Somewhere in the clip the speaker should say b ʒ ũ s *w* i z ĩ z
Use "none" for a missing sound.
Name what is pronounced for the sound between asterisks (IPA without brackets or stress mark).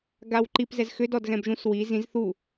w